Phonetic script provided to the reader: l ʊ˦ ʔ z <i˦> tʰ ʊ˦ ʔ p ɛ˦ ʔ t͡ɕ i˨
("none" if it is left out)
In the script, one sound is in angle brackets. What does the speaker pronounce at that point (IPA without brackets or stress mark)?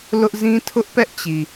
ĩ˦